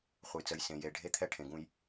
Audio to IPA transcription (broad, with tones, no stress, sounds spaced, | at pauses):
χʷ ə˨ j t͡s ə˨ j s ẽ˨ j e˨ ɖʱ e˦ t̪ʰ ɛ˦ ʈʰ ẽ˨ ɡ ũ˦ j